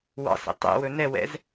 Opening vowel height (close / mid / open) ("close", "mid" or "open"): open